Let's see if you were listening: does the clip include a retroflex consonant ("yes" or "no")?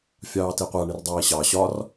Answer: yes